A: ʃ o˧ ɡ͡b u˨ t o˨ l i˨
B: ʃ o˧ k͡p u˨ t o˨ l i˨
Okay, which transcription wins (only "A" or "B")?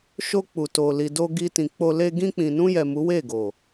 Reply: B